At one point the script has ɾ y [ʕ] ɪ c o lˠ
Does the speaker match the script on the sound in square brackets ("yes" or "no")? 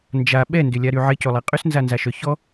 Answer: yes